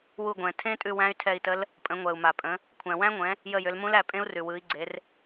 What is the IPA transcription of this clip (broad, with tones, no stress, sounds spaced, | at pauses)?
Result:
w u˦˨ ɡʷ ɛ̃˨˩ tʰ ẽ˦˥ tʼ ʉ˦˨ w æ̃˦˥ y̯ tʰ ɛ˦˨ i̯ t ə˦˥ l | pʼ ə̃˨˦ ŋʷ ɛ˨˩ u̯ m a˨˩ pʼ ə̃˨˦ | kʷʰ æ̃˨˩ w æ̃˦˥ ŋʷ ɛ̃˨˦ | j ə˦˨ j ʏ˨˦ l m ũ˦˥ l æ˦˨ pʼ ẽ˦˥ u̯ r ʉ˨˩ w ɯ˨˦ i̯ ɡ͡ǀ e˨˦ r